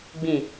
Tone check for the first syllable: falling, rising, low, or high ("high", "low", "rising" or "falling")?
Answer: low